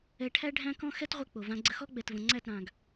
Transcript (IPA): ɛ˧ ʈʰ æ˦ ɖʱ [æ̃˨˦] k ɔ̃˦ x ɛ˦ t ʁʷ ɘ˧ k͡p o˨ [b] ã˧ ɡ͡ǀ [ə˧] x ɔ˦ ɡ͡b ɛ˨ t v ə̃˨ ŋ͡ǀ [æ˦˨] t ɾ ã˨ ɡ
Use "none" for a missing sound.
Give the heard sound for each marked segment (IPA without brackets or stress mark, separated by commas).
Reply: æ̃˦, v, ə˧, æ˦˨